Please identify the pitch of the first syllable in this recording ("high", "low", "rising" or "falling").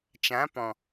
rising